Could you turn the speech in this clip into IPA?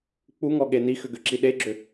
k͡p u ŋ ɔ ɠ e n i x ʏ ɡ ʏ ǁ i ɗ e ɡ͡ǁ ʏ

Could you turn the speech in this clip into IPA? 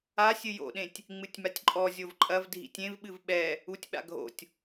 a sʲ ɨ j o̰ ɗ ẽ tʲ | ŋ͡m ɨ tʲ m a tʲ ǃʼ ɔ zʲ o v ǃʼ ɐ v dʱ ḭ tʲ ẽ v ɓ ɨ v ɓ ɛ | u tʲ ɓ a̰ ɡʱ o̰ tʲ

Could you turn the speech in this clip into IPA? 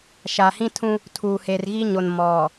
ʃ a˨ h ĩ˦ tʰ ũ˦ | tʰ uː˨ h eː˨ r ɣ i˦ ɲ o˨ n m ɔ˨

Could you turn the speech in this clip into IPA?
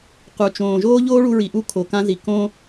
q u˩ t͡ʃ õː˩ ʒ oː˥ ʎ oː˥ ɭ u˧ ɹ i˩ ʔ u˥˩ kʰ o˩ k ã˧ z i˩ k õ˥

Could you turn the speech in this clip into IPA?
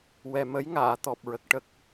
w ɛ˨˩ m ə˧˥ j ŋ aː˨˩˨ t̪ ɔ˨˩ p̚ ɹ ə˨˩ k̚ ʈ ə˦˥ k̚

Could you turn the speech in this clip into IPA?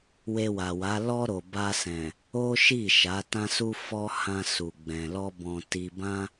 w e˧ w a˨ w a˨˦ l ɔ˦ ɾ o˧ b a˧ s ɛ̃˨ | o˦ ʃ i˦˨ ʃ a˨˦ t ã˦ s u˦ f ɔ˦ h ã˧ s u˧ ɡ͡b ɛ̃˧ l ɔ˦ b ɔ̃˧ t i˧ b ã˦

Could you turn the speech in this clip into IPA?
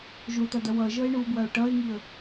ʒ o t̪ ʌ d̪ ɐ w ʌ ʒ ʌ ɪ̯ ɳ u b w ɐ ʊ̯ ʈ ʌ ɪ̯ ŋ i ə̯

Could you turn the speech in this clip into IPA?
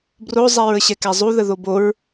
b r o zˤ ɛ ɹ ə ɕ ɛ k æ zˤ u ð ə ð o b o ɹ

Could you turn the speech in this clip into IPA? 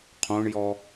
qʰ õ ɳ j ɔ

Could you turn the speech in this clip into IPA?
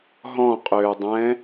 ɦ ɔ̃ qʼ øː dˤ ɛ̃

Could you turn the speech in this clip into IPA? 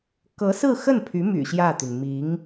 k ɤ˧˥ s ɹ̩˥˧ x ə˥˩ n pʰ y˧˥ m y̰˨˩ ɕ j ä˥˩ t̪ y˩ n m i˧˥ ŋ

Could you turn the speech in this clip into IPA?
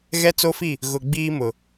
ɣ ɛ˦ t͡s o˦ f i˦˨ | ɣ ʊ˨ ɡ͡b iː˦ m ʊ˨

